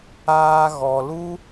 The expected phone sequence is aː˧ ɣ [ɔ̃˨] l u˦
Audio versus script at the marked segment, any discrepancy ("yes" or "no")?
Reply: yes